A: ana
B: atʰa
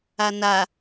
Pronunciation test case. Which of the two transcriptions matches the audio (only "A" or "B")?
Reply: A